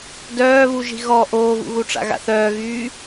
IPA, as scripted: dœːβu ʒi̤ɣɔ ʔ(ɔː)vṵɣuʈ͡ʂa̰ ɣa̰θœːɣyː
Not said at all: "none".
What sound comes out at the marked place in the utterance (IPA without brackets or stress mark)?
oː